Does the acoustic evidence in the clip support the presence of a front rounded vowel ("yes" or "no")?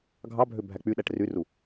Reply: yes